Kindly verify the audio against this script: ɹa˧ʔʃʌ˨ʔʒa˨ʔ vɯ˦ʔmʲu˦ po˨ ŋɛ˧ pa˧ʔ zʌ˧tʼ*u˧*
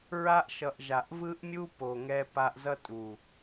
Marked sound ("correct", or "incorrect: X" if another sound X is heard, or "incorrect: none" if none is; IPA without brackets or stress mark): incorrect: u˨